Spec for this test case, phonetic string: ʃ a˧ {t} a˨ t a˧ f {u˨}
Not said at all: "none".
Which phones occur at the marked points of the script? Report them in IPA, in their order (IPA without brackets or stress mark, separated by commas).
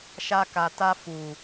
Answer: k, u˨